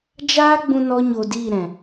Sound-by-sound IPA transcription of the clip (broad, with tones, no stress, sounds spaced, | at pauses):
d͡ʒ aː˦ ɡ͡b ũ˧ n ɔ˦ ɲ o˧ d iː˦˨ ɾ ɛ̃˨